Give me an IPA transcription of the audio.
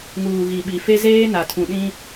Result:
ŋuː˨ ɣi˨ɓi˨ fe˦zeː˦ na˨ tʰũ˨ɗĩ˦

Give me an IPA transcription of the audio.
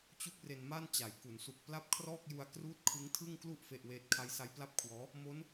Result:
t͡ɕu˥˩k̚re˧nma˥˩nt͡ɕa˩˦j ku˩˦nsu˨˩k̚ pla˥˩p̚kʰrɔː˥˩k̚ ju˧a̯ kruː˦˥t̚kʰɯ˦˥ŋtʰɯ˥˩ŋklu˥˩ʔ fe˥˩ʔweː˥˩t̚ kʰa˦˥jsa˦˥jpla˥˩p̚kʰwɔː˦˥ | mo˦˥n

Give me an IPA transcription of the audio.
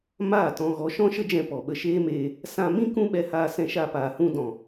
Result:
maː˦˨tɔ̃˧ ɣɔ˨˦ ʃɔ̃˦ʃə˦d͡ʒɛ̃˧ pɔ˨ɓə˧ʃeː˦meː˧ | sã˧mĩ˦ kũ˦ɓɛ˧haː˧ sɛ̃˧ʃa˧paː˨hũ˧ dɔ̃˨

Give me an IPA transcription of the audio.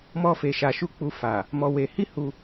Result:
mɔ˧fe˨ʃa˨ʃu˧ k͡pu˧ fa˨ | mɔ˧we˧ hi˦ hu˧

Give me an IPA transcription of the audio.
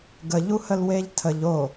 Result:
ɡəʎuhəl weʎtʰəʎ o

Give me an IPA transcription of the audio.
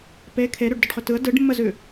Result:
pe kʰeɾʉɖ dʏɖχʏtɯə̯ dɯɖmːəzʉ

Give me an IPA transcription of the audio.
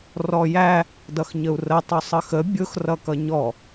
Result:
rɔjæ | dʌxɲəu̯rə tˤusˤəxə bʲʊx rʌkʌɲɔ

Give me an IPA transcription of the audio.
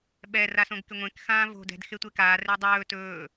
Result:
ɓɛ rasõɡkɪŋʷẽk xãːvo̤ dɛ̤d xetʷekaː redˤɵː tɵː

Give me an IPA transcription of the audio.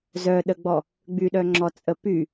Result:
zœɗəɡ͡bɔ | ɡ͡byɗœŋ͡ǁɔt͡sʼə py

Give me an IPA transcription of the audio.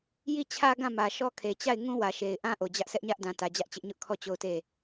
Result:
ji˦˨t͡ɕʰä˦ɡã˦˨ mä˨ʃɔ˦ kʰe˨t͡ɕa˦˨ɪ̯ ŋũ˦wä˨ʃe˨ɪ̯ʔã˦ ʔo˨d͡ʑä˦ʔsɛ˦ʔɲä˦ʔ dã˨tä˨d͡ʑä˦ʔt͡ɕɪ˦ʔ ɲʊ˦ʔkʰɔ˦˨ t͡ɕo˦˨ʊ̯te˦˨

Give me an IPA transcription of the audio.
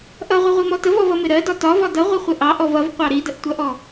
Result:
ʔʌʁʷəʁʷimɔ təvɔvʌmɪ ɾɜdɒ tɒvɒ dʌʁʷɪχʷɪ ʔɑʔɔv ʌvqʷɑ ɾidəʔtʷʌʔɔ

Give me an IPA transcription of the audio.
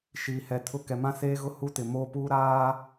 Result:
ʃiː˨hɛ˨tʰʊ˦˨ kɛ˨mã˦seː˦ɣʊ˦˨ hu˦tɪ˨moː˦puː˦ ɾaː˦

